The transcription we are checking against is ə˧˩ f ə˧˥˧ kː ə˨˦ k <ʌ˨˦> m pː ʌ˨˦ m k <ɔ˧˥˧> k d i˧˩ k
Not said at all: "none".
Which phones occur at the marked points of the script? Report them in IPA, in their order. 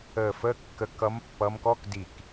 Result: ʌ˨˦, ɔ˧˥˧

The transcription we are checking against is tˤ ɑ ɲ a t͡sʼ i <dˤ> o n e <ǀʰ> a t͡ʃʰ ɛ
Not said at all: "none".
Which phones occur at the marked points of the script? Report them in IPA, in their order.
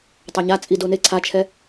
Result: d, ǀʰ

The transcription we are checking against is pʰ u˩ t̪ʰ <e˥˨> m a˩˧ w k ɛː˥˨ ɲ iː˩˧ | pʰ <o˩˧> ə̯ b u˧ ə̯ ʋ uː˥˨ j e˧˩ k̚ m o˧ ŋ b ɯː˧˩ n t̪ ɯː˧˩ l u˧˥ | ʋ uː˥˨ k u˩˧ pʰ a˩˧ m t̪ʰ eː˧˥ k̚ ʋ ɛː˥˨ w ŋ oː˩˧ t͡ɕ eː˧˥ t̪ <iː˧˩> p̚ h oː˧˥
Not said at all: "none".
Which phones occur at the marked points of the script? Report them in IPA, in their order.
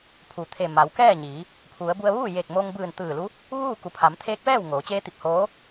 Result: e˧˩, u˩˧, i˧˩

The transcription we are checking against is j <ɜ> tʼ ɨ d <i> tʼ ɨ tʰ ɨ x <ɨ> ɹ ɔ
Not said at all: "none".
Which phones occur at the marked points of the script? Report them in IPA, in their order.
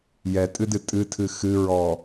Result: ɛ, ɨ, ɨ

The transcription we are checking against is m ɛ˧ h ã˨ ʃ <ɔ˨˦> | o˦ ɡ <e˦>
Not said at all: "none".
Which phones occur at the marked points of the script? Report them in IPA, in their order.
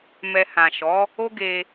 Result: ɔ˨˦, e˧

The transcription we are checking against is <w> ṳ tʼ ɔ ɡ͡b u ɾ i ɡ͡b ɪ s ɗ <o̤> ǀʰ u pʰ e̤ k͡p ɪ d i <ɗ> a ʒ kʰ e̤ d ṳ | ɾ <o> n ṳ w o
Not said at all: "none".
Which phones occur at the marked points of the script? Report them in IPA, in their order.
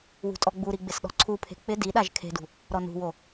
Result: w, ɔ̤, ɗ, ɔ

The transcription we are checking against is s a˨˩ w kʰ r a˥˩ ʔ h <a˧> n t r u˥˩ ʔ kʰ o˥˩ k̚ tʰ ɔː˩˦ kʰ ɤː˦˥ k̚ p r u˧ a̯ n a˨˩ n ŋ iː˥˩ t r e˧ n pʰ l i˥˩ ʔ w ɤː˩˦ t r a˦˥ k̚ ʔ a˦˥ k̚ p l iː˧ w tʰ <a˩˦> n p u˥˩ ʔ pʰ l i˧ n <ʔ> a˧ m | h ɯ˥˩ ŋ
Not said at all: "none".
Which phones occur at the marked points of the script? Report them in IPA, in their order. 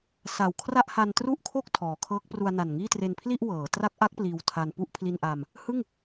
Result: a˧, a˧, ʔ

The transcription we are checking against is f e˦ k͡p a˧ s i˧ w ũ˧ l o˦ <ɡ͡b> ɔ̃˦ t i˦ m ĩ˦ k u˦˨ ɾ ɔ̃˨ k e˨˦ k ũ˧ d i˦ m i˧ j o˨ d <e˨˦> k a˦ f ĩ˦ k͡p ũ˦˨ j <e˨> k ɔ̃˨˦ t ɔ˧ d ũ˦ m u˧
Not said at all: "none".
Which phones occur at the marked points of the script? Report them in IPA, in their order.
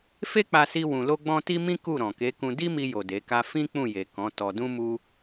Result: ɡ͡b, e˨˦, e˨

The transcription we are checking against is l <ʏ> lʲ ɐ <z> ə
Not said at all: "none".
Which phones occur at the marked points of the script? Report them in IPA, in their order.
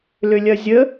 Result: ʏ, zʲ

